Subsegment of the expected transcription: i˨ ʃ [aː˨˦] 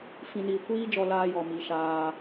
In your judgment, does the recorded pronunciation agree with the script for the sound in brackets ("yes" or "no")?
no